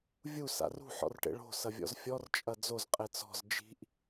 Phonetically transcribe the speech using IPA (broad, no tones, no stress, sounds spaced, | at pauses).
vʲ u s a̰ r ṳ ħ ɔ̰ r ʈ ḛ ɭ o̤ s ɐ vʲ ɔ̰ z fʲ ɔ r t͡ʃʼ ɐ d͡z o z qʼ e t͡s ɔ̤ z d͡ʒ i̤ ʔ